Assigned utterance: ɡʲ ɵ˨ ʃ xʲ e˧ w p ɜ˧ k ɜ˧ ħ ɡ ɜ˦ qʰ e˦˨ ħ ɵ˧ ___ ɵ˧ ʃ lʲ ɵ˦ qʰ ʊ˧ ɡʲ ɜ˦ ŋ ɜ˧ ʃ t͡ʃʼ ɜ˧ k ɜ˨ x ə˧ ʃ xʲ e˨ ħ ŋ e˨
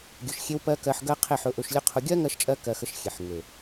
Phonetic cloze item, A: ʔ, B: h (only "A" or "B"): A